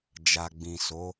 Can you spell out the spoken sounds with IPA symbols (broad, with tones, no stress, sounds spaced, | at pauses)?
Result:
d͡ʒ a˨ ɡ͡b ĩ˨ s o˨˦